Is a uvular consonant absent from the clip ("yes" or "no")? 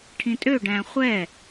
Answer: no